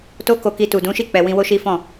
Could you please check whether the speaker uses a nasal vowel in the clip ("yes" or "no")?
yes